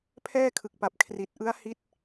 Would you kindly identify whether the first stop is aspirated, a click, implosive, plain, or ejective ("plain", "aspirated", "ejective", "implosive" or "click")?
aspirated